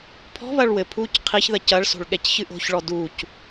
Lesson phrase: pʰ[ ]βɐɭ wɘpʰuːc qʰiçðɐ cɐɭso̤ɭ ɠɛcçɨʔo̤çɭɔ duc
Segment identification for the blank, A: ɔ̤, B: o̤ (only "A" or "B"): A